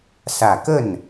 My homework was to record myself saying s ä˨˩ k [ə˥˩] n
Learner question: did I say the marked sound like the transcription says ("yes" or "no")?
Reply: yes